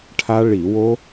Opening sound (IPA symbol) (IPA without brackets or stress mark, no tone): ʈʰ